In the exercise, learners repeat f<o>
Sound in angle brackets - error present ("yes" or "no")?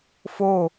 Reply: no